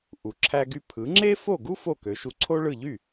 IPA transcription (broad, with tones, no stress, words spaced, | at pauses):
ʔu˩ǁʰæ˧ɡy˧ pʰɯ˩˥ŋ͡ǁe˥ fo˥˩ɡu˥ fo˥˩kø˩˥ʃu˧ ǀʰo˥ɭɯ˥˩ ʎy˥˩